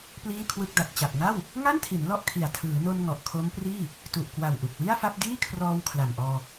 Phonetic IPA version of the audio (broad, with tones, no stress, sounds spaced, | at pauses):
p l iː˥˩ kʰ w ɯ˥˩ k̚ d a˨˩ t̚ t͡ɕ a˨˩ p̚ ŋ a˥˩ w | ŋ a˥˩ n tʰ i˩˦ n l ɔ˥˩ ʔ kʰ i˨˩ a̯ tʰ ɯː˩˦ n o˧ n ŋ ɔ˨˩ ʔ kʰ o˦˥ m p r iː˥˩ | t u˨˩ ʔ k w a˨˩ w ʔ u˨˩ k̚ w i˥˩ a̯ f a˥˩ p̚ d iː˥˩ kʰ r ɔː˧ w kʰ l a˨˩ m ʔ ɔː˧